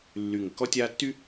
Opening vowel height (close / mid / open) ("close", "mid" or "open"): close